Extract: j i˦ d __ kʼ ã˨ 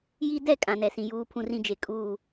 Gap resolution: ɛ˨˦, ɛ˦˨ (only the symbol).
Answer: ɛ˦˨